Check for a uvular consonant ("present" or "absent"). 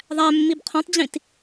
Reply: present